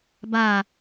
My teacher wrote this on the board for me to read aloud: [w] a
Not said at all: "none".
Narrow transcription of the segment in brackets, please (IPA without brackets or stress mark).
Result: b